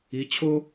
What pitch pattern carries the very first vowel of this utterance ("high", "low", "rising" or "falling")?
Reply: rising